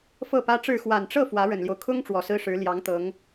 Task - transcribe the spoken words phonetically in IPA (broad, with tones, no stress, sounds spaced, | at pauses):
f ɤ˥˩ p ä˥ ʈ͡ʂ ɻ̩˥˩ x w a˨˩ n ʈ͡ʂ ɤ˥˩ f w ä˧˥ ɻ ə˨˩ n l j o˦ ʊ̯ kʰ ʊ˥ ŋ ʈ͡ʂ w ɔ˨˩ s ɹ̩˥ ʂ ɻ̩˧˥ l j ɑ˧˥ ŋ t̪ ɤ˧˥ ŋ